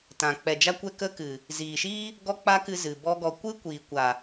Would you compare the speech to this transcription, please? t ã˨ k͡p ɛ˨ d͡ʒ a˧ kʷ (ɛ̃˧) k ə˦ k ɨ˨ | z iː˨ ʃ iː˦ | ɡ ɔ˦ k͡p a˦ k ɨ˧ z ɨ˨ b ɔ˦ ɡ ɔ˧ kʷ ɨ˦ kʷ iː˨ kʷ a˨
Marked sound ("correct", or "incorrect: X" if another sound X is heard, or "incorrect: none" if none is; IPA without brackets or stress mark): incorrect: ɛ˧